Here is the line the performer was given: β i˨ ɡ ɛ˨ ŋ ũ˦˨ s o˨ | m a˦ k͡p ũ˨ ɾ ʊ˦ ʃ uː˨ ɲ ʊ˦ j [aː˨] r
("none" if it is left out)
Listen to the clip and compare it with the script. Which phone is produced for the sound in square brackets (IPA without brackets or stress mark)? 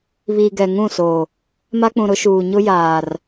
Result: aː˨